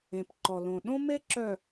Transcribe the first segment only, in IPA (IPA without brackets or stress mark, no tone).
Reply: ẽ